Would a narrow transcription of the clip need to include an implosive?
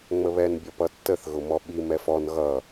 yes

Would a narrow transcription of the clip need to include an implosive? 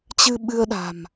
yes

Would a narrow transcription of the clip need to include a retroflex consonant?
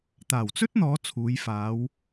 no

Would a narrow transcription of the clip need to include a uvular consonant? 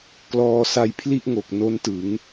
no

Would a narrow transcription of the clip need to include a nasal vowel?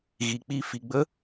no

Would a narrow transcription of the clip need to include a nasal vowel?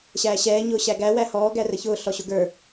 no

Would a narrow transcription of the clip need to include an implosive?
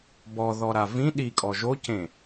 yes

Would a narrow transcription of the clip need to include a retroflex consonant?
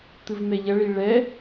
yes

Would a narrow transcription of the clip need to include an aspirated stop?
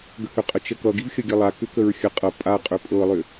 no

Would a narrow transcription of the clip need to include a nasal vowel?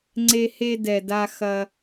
no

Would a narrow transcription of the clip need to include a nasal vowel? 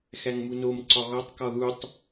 no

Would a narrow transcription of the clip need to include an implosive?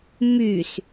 no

